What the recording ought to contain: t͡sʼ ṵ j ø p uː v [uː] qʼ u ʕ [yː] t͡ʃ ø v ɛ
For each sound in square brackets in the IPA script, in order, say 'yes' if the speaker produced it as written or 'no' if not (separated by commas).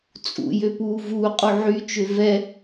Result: yes, no